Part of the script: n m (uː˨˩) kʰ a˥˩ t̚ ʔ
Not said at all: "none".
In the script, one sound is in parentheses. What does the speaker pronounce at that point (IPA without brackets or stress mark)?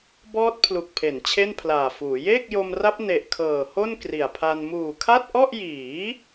uː˨˩